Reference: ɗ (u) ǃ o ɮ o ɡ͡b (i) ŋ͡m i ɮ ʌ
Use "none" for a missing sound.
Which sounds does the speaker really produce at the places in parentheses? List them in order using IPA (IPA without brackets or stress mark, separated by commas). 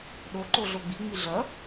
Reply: o, i